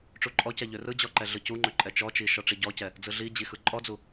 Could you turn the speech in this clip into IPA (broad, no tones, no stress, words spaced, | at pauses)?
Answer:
ʈ͡ʂuǃʼɔcɛ ʎørɯd͡ʑɔ ǃɛɮɯcuŋ͡ǃø ǃʼɛt͡ʃɔt͡ʃi ʃɔʈ͡ʂiɟɔcɛ | d͡zɯɮid͡ʑi xɯǃʼɔd͡zu